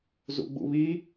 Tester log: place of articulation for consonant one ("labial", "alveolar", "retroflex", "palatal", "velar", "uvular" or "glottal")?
alveolar